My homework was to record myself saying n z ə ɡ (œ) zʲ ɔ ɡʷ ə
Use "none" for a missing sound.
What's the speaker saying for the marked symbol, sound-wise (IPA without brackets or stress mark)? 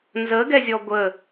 ɛ